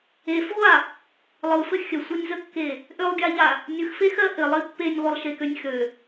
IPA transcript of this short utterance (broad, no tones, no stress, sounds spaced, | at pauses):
e f ʁʷ a | lˠ ɯ f ɘ xʲ ə sʷ ɜ nʲ z ə kː e | ʔ ø lˠ ɡʲ a ʎ a | nʲ ɯ x f e x ɜ ʔ ɘ lˠ i pː e nʲ ʁʷ ɘ lˠ ʃ e k ø nʲ x ø